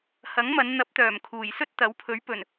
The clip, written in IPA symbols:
hɐ˨˥ŋmɐ˨˧n n̪ɐ˨˥p̚t̪œː˨˩m kʰuː˨˩jsɵ˥t̚t̪ɐ˨˥wpʰɵ˨˥ɥ pɵ˨˩n

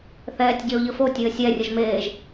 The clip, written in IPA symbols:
θɛːtʲɟeo̯ʎəfo tʲɘːsʲɛ rʲəʒmeːʒ

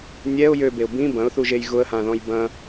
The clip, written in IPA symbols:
nʲɛʊ̯ jøbeʊ̯ bĩ bɐ̃ʊ̯θuʒej ɣʊə̯hãðɔ̃j bɐ̃

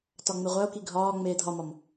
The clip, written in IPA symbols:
tɒŋ͡meʁʷæo̯ki ɡʱɒː ŋ͡meːdʱɒmɒm

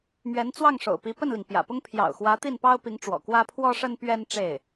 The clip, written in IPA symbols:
mɥɛ˧˥nt͡swɑ˥˩ŋʂo̰˨˩ʊ̯ pi˧˥pə˥˩nli˩ŋ pjä̰˨˩pʊ˥ŋ pʰjɑ̰˨˩ʊ̯xwä˧˥ t̪i˥˩npɑ˥ʊ̯pi˧˥ŋʈ͡ʂwɔ̰˨˩ kwä˥pʰwɔ˥ʂə˥n pɥɛ˥n ʈ͡ʂe˥˩ɪ̯

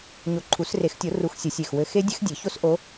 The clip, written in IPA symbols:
ɲo˨˦ǃʰu˨˩˦s re˨˩˦xtʲo˨˩˦ ru˨˦x sʲɘ˨˩˦sʲe˨˩x wɘ˨˦ xe˦˥ dʲɘ˦˥xdʲe˨˩˦ço˦˥s ʔo˨˦

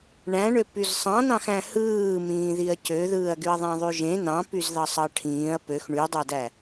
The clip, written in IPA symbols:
ɳæ̃ɳø pyzsˤɑ̃nɑ̃x æ̃hɯːmĩːðiɐ̯ cøðɯːɐ̯ɡyɐ̯ðˤæ̃ ðˤyʒẽ nɑ̃pyzðɑ sˤɑʈʰĩːɐ̯ pøx ɳydˤædæ

